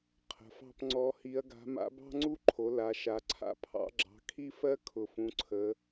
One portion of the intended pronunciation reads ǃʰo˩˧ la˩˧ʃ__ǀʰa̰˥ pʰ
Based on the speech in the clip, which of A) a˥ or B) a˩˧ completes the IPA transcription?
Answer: B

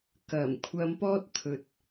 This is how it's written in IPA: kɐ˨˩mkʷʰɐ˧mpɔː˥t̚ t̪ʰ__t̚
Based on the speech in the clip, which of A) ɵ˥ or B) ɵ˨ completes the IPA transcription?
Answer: B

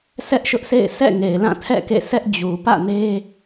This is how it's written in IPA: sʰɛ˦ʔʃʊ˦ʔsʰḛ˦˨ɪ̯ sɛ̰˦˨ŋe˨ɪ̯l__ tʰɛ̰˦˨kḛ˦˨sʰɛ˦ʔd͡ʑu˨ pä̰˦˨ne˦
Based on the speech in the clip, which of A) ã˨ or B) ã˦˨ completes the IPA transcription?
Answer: B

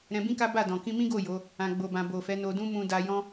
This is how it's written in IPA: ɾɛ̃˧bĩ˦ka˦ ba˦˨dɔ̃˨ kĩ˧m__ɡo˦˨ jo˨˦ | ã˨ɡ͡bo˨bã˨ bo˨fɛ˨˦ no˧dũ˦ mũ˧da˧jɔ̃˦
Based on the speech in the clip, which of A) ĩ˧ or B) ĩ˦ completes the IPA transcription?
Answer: B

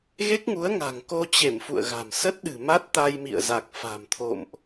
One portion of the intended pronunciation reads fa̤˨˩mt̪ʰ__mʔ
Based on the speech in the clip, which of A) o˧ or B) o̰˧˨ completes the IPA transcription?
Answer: B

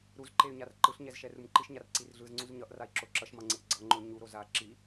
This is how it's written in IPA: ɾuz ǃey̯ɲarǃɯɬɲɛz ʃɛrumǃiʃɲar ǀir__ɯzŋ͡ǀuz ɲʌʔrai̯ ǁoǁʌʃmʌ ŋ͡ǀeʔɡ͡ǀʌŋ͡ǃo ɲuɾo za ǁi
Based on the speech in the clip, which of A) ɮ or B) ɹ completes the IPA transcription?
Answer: A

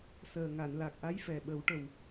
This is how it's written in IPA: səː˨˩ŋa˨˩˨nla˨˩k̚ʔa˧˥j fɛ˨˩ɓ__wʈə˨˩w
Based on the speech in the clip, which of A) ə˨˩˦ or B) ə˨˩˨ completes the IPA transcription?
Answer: A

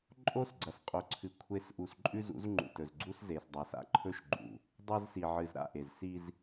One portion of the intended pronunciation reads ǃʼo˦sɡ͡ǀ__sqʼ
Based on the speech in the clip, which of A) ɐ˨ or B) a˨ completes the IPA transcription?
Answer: A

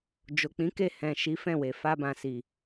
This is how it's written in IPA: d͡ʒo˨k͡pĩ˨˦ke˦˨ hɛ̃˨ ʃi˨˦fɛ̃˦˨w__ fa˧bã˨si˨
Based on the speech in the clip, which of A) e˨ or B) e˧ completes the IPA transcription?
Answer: A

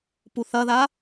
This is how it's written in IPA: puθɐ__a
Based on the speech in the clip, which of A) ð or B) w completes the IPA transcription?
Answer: A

